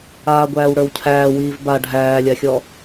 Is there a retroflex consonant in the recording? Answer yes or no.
yes